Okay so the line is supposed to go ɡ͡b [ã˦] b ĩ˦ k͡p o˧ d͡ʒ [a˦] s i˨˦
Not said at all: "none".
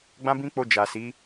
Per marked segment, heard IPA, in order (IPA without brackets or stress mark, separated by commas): ã˦, a˨